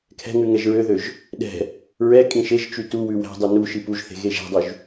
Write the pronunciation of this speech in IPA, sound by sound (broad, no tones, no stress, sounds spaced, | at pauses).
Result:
kʰ ɛ̤ ŋ ʉ ŋ ɛ ʒ ɹ ø ð ø ʒ | ɗ ɛ̤ | ɹ ɛ kʼ ĩ ʃ e ʒ t͡ʃ y t u w ʉ w æ̤ dˤ ʉ n u ʃ i p u ʒ θ e̤ ɣ e ʒ æ̤ dˤ ʉ ʒ